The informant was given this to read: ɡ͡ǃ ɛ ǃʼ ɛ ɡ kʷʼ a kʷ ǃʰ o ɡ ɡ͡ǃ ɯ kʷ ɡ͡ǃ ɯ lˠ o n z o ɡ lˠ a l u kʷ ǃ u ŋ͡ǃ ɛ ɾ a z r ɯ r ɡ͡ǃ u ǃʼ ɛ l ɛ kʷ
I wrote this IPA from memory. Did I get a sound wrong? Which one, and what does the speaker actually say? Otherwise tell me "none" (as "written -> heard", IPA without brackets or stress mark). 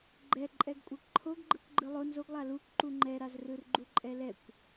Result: none